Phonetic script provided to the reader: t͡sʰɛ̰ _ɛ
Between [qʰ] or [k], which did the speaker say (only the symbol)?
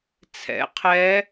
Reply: qʰ